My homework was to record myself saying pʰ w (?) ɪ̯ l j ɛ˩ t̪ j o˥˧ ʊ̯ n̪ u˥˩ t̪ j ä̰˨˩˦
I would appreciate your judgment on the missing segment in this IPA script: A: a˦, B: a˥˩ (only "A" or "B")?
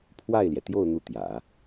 B